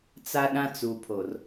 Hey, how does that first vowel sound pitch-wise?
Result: high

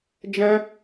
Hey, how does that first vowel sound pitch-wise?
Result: high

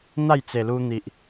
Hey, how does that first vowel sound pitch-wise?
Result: falling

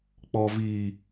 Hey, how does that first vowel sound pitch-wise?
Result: low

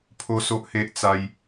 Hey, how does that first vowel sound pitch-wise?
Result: high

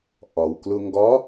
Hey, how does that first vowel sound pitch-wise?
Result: low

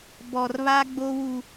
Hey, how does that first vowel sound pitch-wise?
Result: low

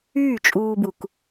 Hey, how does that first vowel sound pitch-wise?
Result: falling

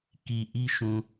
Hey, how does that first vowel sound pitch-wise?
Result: low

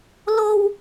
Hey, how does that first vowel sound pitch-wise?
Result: high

